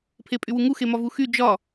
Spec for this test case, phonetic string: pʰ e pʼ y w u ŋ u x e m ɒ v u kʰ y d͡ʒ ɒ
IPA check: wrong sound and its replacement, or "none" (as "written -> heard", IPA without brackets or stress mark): kʰ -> x